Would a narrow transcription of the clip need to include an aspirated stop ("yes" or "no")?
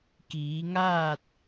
no